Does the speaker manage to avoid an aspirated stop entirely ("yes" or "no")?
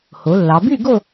yes